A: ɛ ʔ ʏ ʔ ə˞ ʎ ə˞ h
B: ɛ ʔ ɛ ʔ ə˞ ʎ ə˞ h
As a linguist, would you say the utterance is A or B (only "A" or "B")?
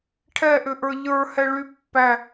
A